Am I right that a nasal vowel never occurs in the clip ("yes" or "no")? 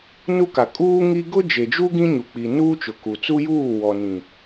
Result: no